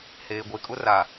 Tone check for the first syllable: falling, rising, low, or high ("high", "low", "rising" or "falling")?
low